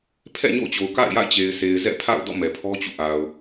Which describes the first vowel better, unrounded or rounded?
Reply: unrounded